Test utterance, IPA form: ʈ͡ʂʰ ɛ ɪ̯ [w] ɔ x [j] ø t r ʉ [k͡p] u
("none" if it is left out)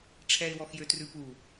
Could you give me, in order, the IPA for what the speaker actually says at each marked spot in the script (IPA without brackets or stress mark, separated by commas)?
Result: w, j, p